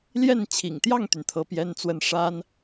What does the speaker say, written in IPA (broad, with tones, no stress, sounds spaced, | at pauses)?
l j ɛ˥˩ n t͡ɕʰ ḭ˨˩ ŋ t̪ j ɑ˥˩ ŋ t̪ y˩ n t̪ʰ ɤ˧˥ p j ɛ˥ n t͡s w ə˥˩ n ʂ a˥ n